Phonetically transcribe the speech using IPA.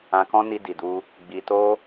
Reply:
ã˧ k ɔ̃˦ n i˧ d i˨ d u˧ | ɡ͡b i˧ t o˦

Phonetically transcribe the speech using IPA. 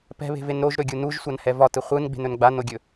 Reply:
p ɛ̤ β e̤ v e n ɾ o ʒ ɾ ɵ ɡʲ u n u ʒ sʷ a n h ɛ v ɒ t ɯ χʷ ɯ n ɡ͡b e̤ n ɵ n ɡ͡b a n o ɡʲ ɵ

